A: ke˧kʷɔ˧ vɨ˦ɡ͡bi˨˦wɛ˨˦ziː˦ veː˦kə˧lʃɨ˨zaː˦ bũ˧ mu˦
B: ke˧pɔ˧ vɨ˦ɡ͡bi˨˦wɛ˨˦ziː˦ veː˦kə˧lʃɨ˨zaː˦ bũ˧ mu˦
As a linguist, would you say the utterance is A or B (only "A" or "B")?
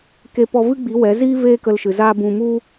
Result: B